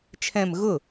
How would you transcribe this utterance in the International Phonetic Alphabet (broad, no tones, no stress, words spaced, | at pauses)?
t͡ʃʰɛ̃m ɣʊ